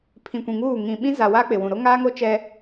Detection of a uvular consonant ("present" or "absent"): absent